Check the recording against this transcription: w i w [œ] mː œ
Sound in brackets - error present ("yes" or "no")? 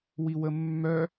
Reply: yes